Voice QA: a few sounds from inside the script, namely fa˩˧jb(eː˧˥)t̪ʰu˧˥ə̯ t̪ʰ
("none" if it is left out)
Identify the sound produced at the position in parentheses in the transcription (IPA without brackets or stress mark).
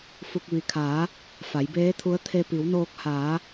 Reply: eː˧˥